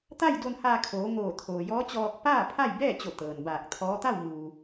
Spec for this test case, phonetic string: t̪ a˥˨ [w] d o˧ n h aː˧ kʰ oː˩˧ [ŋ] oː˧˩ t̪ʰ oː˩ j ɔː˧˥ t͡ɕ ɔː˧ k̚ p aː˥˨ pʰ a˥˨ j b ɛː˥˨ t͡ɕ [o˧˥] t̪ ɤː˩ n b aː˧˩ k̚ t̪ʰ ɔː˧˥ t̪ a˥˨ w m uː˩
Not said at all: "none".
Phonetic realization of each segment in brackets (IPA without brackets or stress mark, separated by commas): j, ŋ, o˧˩